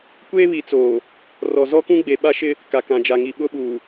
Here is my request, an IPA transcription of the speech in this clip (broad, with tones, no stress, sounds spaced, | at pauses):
kʷ eː˦ β i˨ t͡s oː˨ | r ɔ˨ z ɔ˦ k ũ˦ ɡ͡b e˨ ɓ a˦ ʃ ɪ˦ | k a˨ k ã˨ d͡ʒ a˨ ŋ i˨ ɓ ʊ˦ ɓ uː˨